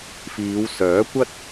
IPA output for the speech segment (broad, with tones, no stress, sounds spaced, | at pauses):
f iː˨˧ w s œː˨˥ kʷ ɐ˥ t̚